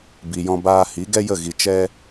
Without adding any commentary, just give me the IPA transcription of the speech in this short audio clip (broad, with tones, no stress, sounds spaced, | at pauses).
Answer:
b i˨ j ɔ̃˧ b aː˧ h i˨˦ ɡ ɛ˦ j ə˦˨ ɣ i˧ t͡ʃ ɛ˦